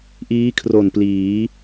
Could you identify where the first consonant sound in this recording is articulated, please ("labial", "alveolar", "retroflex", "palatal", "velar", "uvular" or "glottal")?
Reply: glottal